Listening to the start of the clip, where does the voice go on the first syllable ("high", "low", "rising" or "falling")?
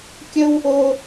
high